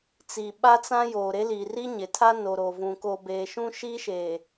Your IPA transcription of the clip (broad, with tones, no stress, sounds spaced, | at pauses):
t͡s i˨ ɓ a˦ t͡s ã˦ j oː˨ ɾ e˦ l i˨ r i˦ ɲ ɪ˨ tʰ a˦ n o˨ ɾ o˨ v ũ˨ k o˨ b eː˨ ʃ ũ˦ ʃ i˦ ʃ eː˨